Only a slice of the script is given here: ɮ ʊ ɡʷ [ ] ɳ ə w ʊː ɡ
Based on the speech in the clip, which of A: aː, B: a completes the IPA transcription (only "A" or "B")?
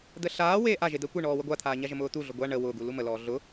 B